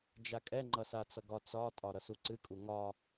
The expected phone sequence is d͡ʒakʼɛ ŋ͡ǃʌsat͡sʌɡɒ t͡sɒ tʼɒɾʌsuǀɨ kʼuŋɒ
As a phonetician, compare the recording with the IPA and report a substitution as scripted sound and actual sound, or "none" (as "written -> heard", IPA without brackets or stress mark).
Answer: none